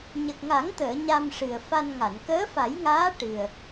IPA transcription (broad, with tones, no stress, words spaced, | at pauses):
ɲə˨˩k̚ŋa˨˩˦ŋt̪əː˨˩˨ ɲa˧mʂɨ˨˩ə̯fa˧nŋa˨˩˨n kəː˧˥fa˨˩˦jŋaː˧˥ ʈɨ˨˩ə̯